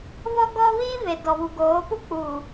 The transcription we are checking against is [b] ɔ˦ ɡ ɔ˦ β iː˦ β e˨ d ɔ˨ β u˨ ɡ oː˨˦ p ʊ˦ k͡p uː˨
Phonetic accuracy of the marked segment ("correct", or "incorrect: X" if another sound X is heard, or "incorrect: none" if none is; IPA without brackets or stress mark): incorrect: β